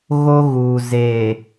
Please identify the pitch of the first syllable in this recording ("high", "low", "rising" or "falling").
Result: high